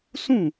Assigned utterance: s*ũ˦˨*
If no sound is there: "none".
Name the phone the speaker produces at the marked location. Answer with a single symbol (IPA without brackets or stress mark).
ũ˦˨